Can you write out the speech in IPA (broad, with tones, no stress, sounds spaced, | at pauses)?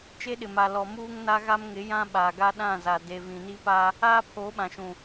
t͡ʃ e˦ ɗ ɪ˨ m a˨ l ɔ˨ m uː˦ ŋ n a˦ ɣ a˦ m ŋ ɪ˨˦ j ã˦ ɓ aː˨ ɡ a˦ ɗ ã˦˨ z a˨ d e˨ v ĩ˨ n i˦ p a˦ | aː˦ pʰ oː˨˦ ɓ ã˨ ʃ ũ˨